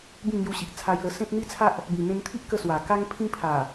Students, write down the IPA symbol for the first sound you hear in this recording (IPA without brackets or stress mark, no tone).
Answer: b